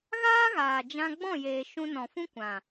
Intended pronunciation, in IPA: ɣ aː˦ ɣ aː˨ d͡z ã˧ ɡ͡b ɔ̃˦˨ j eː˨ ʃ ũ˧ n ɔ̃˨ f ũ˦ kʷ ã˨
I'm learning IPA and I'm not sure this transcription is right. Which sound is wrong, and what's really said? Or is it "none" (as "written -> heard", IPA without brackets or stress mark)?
d͡z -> d͡ʒ